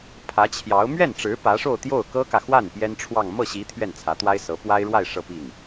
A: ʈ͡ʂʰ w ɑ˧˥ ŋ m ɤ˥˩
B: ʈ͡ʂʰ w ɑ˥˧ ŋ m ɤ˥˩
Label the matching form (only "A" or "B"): B